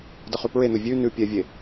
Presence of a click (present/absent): absent